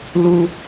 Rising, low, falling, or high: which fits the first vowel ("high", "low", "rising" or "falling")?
low